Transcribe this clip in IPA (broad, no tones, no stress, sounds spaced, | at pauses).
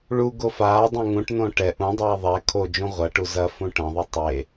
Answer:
ɭ u ɡ o f aː dˤ õ ŋ ũ ʈ n õ ʈ ɛ ʔ ũ dˤ ɛː ðˤ ɛ kʰ o d͡ʒ ũ ʁʷ ɐ ʈ u z ɐ f ũ ʈ ɐ̃ ðˤ ɨ tˤ e